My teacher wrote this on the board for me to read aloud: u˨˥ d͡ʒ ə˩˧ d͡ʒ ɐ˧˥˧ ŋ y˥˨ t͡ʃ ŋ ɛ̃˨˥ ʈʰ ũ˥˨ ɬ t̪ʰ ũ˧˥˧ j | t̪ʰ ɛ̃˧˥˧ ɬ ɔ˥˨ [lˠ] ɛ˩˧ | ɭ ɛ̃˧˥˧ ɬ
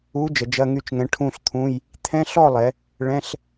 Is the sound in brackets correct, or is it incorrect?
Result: correct